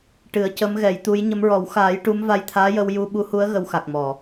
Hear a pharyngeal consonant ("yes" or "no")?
no